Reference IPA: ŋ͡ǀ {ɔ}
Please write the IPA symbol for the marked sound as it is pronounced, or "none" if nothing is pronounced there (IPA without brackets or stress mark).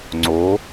o